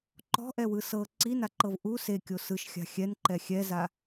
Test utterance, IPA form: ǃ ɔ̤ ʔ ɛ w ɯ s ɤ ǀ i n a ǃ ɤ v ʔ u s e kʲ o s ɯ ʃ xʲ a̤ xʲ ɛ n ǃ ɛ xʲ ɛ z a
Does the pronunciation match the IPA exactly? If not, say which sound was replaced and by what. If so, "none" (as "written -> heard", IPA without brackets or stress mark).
none